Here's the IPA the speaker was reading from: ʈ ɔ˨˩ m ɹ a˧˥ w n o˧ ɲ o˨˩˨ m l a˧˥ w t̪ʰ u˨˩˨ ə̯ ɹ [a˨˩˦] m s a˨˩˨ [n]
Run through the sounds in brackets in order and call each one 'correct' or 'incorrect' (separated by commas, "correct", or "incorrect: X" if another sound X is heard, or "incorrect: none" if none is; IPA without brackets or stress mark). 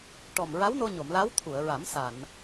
correct, correct